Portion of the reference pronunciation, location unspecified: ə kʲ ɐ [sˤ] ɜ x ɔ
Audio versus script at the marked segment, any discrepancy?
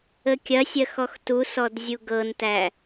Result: yes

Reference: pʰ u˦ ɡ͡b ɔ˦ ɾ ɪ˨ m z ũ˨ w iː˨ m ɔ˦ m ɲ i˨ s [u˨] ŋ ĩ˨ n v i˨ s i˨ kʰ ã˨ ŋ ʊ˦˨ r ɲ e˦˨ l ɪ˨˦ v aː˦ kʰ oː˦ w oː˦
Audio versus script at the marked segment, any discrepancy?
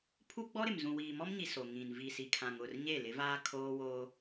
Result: yes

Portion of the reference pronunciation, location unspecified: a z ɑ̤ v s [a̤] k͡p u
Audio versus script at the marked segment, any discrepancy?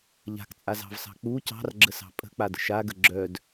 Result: yes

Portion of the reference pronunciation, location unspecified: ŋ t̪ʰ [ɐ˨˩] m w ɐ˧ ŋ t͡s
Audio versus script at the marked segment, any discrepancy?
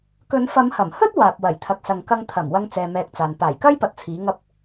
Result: no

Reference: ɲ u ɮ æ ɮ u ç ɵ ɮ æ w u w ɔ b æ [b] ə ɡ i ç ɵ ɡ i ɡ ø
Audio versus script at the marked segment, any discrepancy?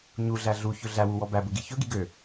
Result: no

